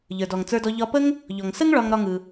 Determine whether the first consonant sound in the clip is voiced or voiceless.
voiced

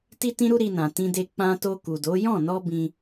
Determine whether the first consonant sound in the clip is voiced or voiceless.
voiceless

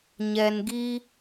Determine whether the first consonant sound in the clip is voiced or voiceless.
voiced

